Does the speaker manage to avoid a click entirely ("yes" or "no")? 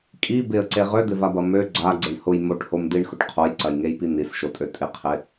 no